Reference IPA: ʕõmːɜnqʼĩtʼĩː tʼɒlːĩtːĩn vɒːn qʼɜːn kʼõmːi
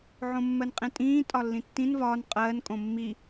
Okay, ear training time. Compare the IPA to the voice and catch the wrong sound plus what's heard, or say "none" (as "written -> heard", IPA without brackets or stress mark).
none